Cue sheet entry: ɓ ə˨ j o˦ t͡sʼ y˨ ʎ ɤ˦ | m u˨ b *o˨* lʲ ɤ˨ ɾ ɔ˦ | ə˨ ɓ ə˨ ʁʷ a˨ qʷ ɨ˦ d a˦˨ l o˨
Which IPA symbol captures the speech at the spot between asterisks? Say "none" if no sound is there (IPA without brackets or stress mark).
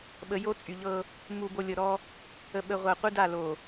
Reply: o˨